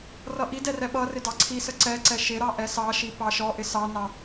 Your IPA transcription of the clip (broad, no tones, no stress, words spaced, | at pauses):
rʌʔidɛ rɛɓʌrɪ dɑǀʰisə ǀɛǀɛ ʃɪɾɑ ʔɛsɑʃi pɑʃɔʔɪ sɑnɑ